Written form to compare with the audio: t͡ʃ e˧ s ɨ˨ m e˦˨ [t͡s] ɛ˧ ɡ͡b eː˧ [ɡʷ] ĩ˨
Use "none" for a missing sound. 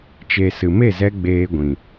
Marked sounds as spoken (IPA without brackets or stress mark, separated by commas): z, ɡʷ